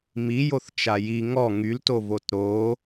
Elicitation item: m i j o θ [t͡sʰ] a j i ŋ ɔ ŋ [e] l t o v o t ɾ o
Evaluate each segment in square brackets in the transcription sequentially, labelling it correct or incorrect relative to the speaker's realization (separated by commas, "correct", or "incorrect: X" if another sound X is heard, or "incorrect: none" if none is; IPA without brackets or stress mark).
incorrect: t͡ʃ, incorrect: y